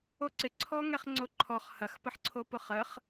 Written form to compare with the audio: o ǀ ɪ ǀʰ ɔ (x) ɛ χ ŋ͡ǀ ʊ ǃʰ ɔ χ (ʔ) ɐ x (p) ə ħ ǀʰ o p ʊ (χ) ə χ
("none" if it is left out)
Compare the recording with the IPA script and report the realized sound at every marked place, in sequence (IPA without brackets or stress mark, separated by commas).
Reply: ŋ, h, p, χ